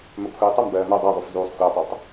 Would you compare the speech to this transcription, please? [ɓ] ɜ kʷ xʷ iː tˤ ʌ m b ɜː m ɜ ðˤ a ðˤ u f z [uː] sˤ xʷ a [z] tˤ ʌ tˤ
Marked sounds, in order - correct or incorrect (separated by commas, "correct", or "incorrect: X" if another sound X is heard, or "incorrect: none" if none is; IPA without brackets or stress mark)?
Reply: incorrect: m, correct, incorrect: none